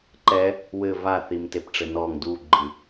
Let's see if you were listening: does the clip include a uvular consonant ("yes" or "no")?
no